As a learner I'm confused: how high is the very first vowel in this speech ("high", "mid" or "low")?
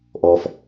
mid